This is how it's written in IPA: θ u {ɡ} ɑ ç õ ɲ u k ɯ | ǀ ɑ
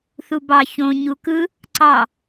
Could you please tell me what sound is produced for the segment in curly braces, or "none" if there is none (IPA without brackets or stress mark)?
b